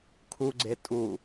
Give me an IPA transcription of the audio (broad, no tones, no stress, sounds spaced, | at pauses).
kʰ u ɡ͡ǀ e tʼ u